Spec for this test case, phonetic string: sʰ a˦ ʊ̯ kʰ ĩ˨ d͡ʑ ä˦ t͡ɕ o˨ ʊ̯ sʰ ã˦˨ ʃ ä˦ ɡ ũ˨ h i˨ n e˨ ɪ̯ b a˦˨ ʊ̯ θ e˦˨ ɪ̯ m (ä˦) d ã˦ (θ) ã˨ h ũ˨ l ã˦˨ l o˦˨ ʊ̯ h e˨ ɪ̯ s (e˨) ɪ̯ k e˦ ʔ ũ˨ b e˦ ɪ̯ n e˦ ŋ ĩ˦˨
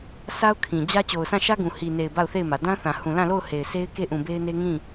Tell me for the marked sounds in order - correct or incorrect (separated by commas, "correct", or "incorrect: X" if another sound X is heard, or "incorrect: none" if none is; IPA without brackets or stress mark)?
incorrect: ä˨, correct, incorrect: e˦